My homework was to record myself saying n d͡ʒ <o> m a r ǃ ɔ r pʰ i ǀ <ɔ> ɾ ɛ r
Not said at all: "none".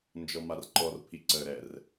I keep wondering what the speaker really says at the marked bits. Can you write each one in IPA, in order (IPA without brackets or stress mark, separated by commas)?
ɔ, ə